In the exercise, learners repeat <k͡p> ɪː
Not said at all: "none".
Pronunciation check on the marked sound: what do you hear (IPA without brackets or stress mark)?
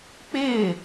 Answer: k͡p